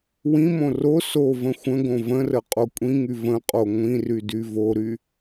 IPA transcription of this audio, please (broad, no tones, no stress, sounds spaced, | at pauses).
w ĩ m õ r o s o v ə̃ xʷ ə̃ ɡ õ v ə̃ r ə qʼ o kʷʼ ĩ ŋ y v ə̃ qʼ o ŋʷ ĩ r y d y v o ɾ y